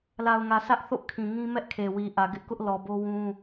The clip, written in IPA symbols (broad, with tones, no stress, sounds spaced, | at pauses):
l a˨ ʊ̯ ŋ ä˨ sʰ ä˦ ʔ θ o̰˦˨ kʰ ĩ˨ ŋ ĩ˦ m ɛ˦ ʔ kʰ e˨ w i˨ ʔ ä˨ ɡ ɪ˦ ʔ k ʊ˦ ʔ l ɔ˨ b o˦ w ũ˦